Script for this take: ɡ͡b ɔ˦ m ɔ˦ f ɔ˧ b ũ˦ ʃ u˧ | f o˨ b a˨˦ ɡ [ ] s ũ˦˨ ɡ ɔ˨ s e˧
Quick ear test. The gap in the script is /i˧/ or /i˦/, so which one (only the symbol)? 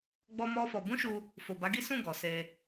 i˦